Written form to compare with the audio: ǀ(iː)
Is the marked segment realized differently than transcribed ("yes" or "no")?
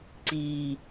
no